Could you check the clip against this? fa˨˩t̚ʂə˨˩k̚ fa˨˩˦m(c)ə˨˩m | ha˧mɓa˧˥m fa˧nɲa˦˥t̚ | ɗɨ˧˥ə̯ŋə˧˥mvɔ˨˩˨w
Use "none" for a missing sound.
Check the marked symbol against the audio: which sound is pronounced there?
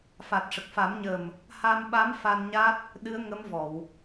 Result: ɲ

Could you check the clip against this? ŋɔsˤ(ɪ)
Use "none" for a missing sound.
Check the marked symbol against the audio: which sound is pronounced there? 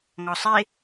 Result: ɪ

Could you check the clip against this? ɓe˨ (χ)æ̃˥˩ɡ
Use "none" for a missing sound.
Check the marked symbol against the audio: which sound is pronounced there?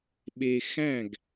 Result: x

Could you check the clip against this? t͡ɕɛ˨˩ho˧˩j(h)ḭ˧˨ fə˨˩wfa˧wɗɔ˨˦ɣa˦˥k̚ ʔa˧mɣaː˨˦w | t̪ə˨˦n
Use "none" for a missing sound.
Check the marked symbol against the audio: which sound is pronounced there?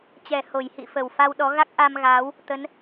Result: h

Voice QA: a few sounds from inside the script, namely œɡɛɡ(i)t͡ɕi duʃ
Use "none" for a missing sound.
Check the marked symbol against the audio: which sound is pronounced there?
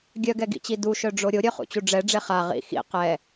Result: ḭ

